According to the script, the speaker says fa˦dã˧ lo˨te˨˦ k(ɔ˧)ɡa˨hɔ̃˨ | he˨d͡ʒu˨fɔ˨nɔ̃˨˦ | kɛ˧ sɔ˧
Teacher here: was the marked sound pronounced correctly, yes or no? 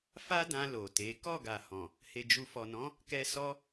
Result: no